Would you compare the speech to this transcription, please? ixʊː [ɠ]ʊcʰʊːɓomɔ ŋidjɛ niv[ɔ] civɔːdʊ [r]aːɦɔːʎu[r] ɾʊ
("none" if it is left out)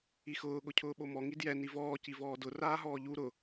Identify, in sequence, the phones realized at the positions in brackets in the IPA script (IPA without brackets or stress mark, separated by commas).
ɠ, ɔː, r, none